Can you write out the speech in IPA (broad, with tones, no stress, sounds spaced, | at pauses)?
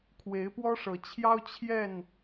kʰ w e˨˦ ɪ̯ p w ɔ˦ ʂ ɤ˨˦ t͡ɕʰ j ɑ˦ ʊ̯ t͡ɕʰ j ɛ˥˨ n